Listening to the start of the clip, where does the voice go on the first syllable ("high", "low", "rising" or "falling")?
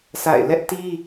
falling